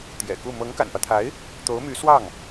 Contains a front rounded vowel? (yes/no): yes